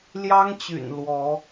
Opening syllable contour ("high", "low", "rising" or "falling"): high